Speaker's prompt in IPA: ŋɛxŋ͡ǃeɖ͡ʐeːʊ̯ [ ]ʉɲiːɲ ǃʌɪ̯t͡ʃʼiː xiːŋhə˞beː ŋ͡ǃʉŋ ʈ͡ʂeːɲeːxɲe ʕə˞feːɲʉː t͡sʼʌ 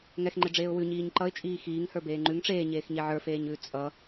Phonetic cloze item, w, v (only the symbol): w